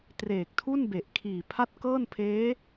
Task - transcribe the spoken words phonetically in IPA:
treː˨˩k̚tʰu˥˩nbe˨˩ʔ kʰiː˨˩pʰa˥˩t̚ kɤː˥˩npʰeː˦˥

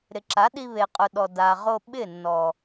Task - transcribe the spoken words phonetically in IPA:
ɾɪ˨ǁa˨˦ɗi˧ βe˨qʼʊ˨ɗɔ˨ da˨ʁo˧ɓɪ˦˨ nːɔ˨

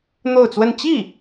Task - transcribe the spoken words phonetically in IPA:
n̪o˥˧ʊ̯t͡swə˥˧n t͡ɕi˥˩

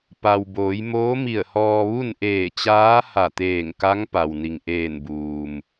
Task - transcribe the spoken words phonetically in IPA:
pa˩wboː˩˧jmoː˧˥ mi˧˩ə̯hɔː˧ ʋu˥˨n ʔeː˧˩t͡ɕaː˧˥ha˧˩t̪eː˧˩ŋ ka˧˥ŋpa˩w ni˩ŋʔeː˧˩nbuː˩m

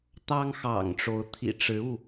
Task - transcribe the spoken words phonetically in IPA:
t̪ɑ˦ŋxɑ̰˨˩ŋʈ͡ʂo˨˦ʊ̯ t̪ʰḭ˨˩ʈ͡ʂɻ̩˨˦u˥˨

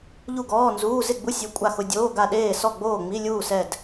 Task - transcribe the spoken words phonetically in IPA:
ʎu˥˨ɡɔː˧˥˧nzuː˧˥˧ zɪ˥˨ɡ͡bu˧˥˧ sʲu˧˥˧ kʷʼa˥˨xʊ˧˥˧ dʲoː˧˥˧ɡa˥˨ ɗeː˥˨sɔ˥˨ ɡ͡boː˥˨ŋ͡mi˧˥˧lʲuː˥˨ sɛ˥˨d

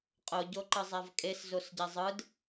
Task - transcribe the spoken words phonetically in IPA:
qʼo ɟoǃɯzˤavkʼes zosɟɛzˤɯd

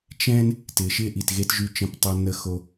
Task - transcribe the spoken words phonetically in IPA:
t͡ʃɛ̃˦n | tɪː˨ʃɪː˦ʔi˨t ɣe˦tʒy˦˨t͡ʃə̃˦ptˤo˦ nə˦xo˦

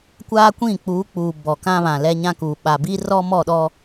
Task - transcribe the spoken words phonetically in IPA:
kʷaː˦kʷĩ˦˨ k͡puː˨˦ k͡puː˨ bɔ˨kã˦βã˨ lɛ˦ɲã˦kuː˨ ɓa˨bi˦rɔ˦ mɔ˦˨ɗɔ˦

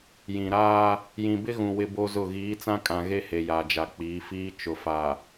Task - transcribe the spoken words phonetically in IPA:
jĩ˨ɾaː˦ | jĩ˨bɪ˦ɣũ˨ wɪ˦bo˦zʊ˦˨ ɣiː˨˦t͡sã˦kʼã˨ ɣe˦he˨ja˨d͡ʒa˨ k͡piː˨˦fiː˦ t͡ʃʊ˨fa˨

